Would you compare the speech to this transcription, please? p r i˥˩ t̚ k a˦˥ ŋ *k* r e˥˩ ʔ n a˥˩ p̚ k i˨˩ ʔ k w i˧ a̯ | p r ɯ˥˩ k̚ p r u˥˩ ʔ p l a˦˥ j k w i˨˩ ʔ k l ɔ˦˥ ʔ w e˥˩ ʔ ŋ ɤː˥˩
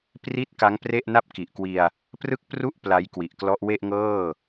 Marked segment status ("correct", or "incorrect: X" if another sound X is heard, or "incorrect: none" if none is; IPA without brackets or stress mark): incorrect: p